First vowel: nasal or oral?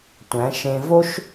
nasal